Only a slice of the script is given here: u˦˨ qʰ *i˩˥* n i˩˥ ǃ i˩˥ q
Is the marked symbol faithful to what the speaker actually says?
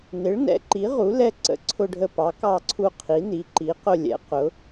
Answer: yes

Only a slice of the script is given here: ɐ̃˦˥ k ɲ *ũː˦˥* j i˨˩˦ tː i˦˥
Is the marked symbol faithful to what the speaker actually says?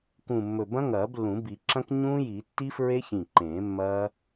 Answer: yes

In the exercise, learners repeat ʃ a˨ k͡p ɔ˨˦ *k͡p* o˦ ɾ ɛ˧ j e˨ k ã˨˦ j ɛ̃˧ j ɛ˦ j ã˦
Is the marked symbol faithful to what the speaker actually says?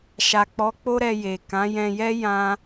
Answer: yes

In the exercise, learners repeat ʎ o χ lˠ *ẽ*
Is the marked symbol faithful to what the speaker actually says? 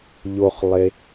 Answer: no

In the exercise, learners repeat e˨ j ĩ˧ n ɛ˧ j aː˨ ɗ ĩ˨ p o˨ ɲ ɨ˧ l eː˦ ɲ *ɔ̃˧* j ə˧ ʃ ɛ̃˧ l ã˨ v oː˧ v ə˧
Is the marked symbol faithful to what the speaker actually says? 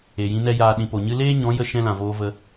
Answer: no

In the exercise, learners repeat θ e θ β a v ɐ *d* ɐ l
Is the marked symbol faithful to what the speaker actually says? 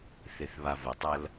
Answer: no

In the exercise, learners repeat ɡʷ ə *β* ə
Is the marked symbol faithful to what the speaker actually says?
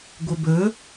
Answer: no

